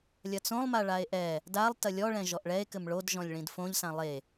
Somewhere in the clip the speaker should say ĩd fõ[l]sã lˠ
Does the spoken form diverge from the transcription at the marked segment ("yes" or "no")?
yes